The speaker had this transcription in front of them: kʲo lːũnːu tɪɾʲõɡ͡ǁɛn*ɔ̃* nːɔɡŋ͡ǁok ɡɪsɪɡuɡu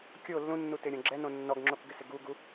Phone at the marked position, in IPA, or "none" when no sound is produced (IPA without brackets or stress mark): õ